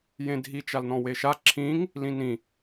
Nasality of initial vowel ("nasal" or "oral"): nasal